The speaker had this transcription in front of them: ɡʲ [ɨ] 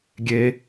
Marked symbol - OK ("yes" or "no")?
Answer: no